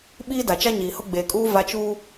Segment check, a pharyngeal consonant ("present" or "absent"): absent